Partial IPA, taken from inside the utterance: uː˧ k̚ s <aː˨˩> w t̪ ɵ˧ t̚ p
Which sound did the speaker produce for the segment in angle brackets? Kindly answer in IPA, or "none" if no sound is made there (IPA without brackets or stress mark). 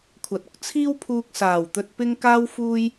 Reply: aː˨˩